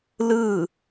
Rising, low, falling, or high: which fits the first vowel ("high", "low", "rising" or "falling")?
falling